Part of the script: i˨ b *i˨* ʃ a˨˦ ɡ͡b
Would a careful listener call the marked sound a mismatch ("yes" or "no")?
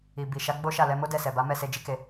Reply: no